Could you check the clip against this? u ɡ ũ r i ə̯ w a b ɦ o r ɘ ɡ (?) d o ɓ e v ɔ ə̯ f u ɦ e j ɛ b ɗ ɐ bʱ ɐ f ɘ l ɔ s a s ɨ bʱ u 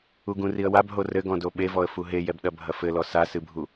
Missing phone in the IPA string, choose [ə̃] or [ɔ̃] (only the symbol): ɔ̃